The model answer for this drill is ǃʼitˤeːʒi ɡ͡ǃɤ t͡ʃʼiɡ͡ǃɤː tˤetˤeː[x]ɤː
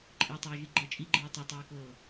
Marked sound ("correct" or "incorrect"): incorrect